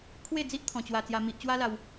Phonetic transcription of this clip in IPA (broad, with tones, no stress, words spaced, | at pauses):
kʰwe˥˧d͡zi˦ʔt̪ʰɔ̃˧t͡ɕwa˧ t͡sja˦mi˦ʔ t͡ɕwa˦la˧w